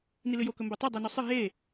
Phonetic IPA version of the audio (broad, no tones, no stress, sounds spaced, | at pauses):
n i l ɨ j o k ɵ m b o tˤ i dˤ i n o sˤ ɨ ɦ e